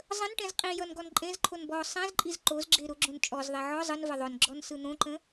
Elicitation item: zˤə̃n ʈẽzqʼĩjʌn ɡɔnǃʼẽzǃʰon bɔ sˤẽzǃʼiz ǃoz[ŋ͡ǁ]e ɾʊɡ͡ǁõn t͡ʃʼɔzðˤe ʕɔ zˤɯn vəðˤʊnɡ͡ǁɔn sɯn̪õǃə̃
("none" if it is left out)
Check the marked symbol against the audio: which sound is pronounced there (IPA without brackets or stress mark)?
ɡ͡ǁ